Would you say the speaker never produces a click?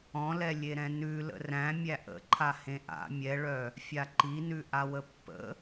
no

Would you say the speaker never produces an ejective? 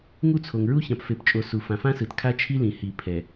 no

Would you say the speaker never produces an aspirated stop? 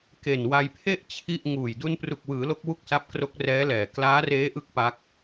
no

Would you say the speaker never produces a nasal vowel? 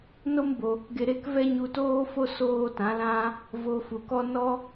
no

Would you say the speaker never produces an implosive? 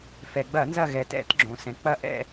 yes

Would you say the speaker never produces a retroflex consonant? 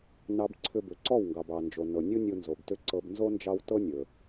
yes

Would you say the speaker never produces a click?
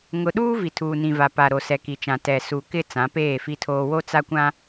yes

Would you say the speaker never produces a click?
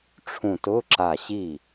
no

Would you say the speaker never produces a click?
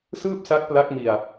yes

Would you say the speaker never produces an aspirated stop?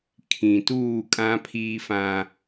no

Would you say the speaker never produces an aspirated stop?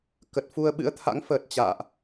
no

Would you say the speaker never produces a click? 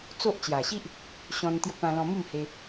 yes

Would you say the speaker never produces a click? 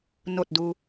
yes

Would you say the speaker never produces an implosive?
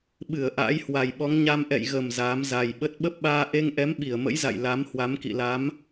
no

